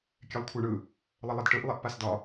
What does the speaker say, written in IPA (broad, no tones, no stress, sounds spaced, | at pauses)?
kʲ ɛ lˠ kʷʰ a ɳ ɯ | lˠ ə lˠ ɐ d ʈ ɯ ʔ lˠ ɛ ʔ p a s d ɒ